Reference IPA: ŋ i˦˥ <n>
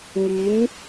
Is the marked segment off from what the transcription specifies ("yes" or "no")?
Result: no